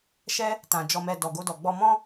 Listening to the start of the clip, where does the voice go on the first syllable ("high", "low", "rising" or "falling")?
high